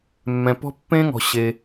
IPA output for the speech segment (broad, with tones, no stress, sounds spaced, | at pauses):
mː ɛ̃˩ p ɔ̤˦˥ pː ẽ˦˥ ŋ ɔ̤˩ ɕ e˩